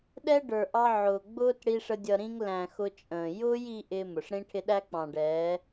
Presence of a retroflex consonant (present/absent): present